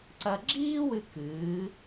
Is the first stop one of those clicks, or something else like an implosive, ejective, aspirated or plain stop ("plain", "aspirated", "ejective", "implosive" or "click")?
click